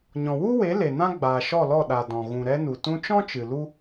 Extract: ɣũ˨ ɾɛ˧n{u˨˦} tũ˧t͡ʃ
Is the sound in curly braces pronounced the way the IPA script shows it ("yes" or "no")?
no